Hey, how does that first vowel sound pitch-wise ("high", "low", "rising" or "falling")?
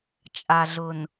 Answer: low